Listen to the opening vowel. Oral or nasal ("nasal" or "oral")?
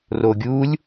oral